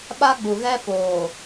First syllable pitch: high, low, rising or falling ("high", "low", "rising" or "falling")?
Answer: high